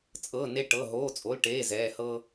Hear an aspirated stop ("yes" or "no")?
no